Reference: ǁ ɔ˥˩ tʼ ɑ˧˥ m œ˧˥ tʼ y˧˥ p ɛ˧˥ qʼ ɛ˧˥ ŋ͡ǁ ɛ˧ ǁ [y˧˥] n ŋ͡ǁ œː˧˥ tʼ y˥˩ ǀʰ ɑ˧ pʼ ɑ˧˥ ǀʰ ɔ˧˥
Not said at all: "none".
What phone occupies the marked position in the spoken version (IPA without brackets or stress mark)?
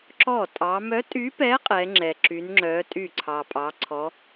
y˧˥